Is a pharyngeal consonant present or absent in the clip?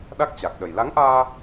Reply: absent